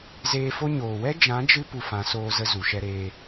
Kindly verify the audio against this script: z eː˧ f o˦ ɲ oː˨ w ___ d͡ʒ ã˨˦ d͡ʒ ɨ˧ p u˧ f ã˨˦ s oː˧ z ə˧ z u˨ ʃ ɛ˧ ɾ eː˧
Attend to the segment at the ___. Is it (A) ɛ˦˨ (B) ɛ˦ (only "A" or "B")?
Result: B